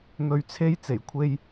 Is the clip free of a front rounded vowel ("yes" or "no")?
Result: yes